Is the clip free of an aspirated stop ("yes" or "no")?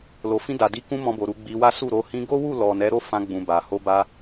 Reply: yes